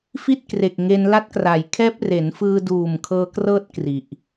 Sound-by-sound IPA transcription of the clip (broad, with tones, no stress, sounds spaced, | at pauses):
f i˥˩ t̚ k r e˨˩ k̚ ŋ e˧ n l a˦˥ t̚ k r a˩˦ j kʰ ɛː˦˥ p̚ r e˩˦ n f ɯː˧ d uː˨˩ m kʰ ɤː˧ k r ɤː˥˩ t̚ k r i˨˩ ʔ